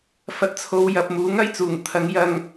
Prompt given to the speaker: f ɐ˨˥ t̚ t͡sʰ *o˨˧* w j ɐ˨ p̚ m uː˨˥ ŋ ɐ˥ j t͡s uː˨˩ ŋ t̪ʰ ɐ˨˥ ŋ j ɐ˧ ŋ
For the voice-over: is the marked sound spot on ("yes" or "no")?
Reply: yes